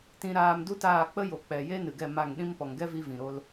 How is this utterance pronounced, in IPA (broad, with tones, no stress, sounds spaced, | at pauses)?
t ĩ˧ ɾ aː˧ m d u˦ t aː˦˨ k͡p ə˦ j o˨ k͡p ɛ˨ j e˦ n ɨ˨ ɡ ɛ˦˨ m a˦˨ ŋ ɗ ĩ˦ m p ɔ˨ ŋ ɡ ɛ˦ v i˧ v ĩ˨ ɾ o˧ l